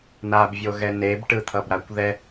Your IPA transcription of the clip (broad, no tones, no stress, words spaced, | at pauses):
nabvʲoɣɛ nebʈɯt̪ʰʌbɾakʷ ðɛ